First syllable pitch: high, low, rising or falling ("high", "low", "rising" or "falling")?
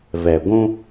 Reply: low